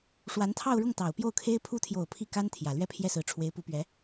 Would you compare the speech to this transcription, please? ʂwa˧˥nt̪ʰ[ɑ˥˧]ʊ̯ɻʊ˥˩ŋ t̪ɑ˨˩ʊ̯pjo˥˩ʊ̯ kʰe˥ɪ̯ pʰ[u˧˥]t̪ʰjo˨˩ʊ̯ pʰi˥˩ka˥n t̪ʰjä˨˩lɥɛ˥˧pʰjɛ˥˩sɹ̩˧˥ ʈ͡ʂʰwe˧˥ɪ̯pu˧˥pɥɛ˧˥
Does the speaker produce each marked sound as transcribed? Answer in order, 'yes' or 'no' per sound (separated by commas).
yes, yes